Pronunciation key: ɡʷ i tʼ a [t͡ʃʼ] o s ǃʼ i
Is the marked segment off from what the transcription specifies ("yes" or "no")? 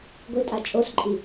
no